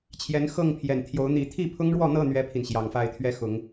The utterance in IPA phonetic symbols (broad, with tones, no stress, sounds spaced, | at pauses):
t͡ɕʰ j ɛ˨˦ n x ɤ˥˨ ŋ pʰ j ɛ˨˩ n t̪ʰ j o˨˦ ʊ̯ n̪ i˨˦ t̪ʰ i˥˨ pʰ ʊ˦ ŋ ɻ w ɔ˥˨ n̪ ɤ˥˨ n̪ ɥ ɛ˦ pʰ i˨ n ɕ j ɑ˨˩ ŋ f a˥˨ ɪ̯ t̪ʰ ɥ ɛ˦ x ʊ˨˦ ŋ